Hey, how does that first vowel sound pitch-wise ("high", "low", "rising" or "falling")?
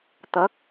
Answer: rising